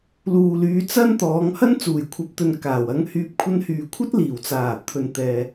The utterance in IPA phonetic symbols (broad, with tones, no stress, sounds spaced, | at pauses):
l uː˨ l yː˨˧ t͡s ɐ˥ n t̪ ɔː˨˧ ŋ h ɐ˥ n t͡s uː˨˩ j kʷʰ ɐ˨ p̚ t̪ ɵ˨ n k aː˨˩ w ɐ˧ ŋ h yː˧ p̚ kʷʰ ɐ˧ n h yː˨ kʷʰ ɐ˥ t̚ l iː˨˩ w t͡s aː˨˩ t̪ʰ ɵ˨ n t̪ ɛː˨